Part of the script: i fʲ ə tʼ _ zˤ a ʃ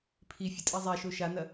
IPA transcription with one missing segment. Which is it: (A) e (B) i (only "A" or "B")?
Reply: B